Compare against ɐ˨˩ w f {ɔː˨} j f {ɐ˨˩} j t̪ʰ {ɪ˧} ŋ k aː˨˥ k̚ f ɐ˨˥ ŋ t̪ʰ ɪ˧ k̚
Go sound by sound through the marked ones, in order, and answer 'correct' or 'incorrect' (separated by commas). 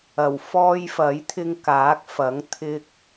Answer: incorrect, incorrect, correct